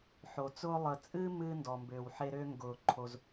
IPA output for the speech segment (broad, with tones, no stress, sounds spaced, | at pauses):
ħ o˨ t͡s ʊː˦ lˠ ə˨ t͡sʼ ɨ˦ m ɨː˦ n d ɔ˨ m b ʏː˨ w ħ e˦ ɾ ʏː˦ ŋ ɡ ʊː˨ ǃʰ o˦ z